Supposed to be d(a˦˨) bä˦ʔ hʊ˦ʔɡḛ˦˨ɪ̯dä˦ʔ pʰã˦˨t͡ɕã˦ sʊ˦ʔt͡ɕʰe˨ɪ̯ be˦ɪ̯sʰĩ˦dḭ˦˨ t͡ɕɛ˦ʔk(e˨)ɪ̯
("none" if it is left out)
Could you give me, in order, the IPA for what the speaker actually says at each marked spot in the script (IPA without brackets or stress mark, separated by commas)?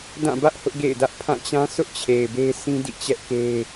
ã˦˨, e˦